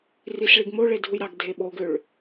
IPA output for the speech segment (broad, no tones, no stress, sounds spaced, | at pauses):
r i s ɭ i ɡ m o ɭ e dʱ u j ɾ ɑ ɡ dʱ e ɓ o ɡ ø ɭ